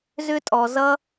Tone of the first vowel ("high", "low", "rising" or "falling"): high